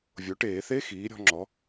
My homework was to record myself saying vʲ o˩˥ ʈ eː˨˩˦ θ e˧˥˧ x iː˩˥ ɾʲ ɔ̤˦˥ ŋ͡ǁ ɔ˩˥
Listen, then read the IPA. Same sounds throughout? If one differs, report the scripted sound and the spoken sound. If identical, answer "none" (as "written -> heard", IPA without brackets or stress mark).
none